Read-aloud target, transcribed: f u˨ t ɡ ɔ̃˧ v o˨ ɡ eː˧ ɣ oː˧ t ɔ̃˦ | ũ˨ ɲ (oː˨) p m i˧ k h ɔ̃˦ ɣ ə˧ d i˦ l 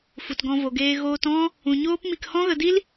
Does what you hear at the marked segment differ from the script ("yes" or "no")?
yes